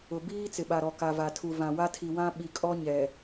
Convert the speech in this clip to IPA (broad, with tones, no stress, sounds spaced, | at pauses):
ʊ˨ b iː˦ t͡s ɪ˨ ɓ a˨ ɾ ɔ˨ k a˨ v a˨ tʰ u˨ v ã˨ w a˦ tʰ i˨ w ã˦ ɓ i˨ kʼ ɔ˦ ɲ ɛ˨